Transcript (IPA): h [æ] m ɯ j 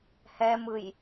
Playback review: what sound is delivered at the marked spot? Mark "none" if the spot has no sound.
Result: ɛ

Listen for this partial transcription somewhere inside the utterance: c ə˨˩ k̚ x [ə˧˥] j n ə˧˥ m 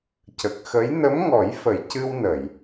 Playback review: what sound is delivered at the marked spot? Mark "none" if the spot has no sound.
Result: ə˧˥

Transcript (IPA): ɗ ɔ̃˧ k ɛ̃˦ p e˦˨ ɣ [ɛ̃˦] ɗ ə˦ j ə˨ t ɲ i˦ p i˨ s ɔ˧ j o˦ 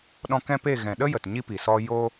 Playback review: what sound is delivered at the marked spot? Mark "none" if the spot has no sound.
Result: ɛ̃˨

